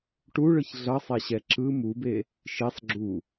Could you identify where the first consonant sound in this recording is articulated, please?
retroflex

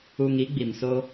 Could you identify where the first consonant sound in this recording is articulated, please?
velar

